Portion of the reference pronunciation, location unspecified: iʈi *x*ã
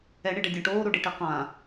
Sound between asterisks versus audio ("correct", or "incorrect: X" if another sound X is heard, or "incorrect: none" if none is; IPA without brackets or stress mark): incorrect: q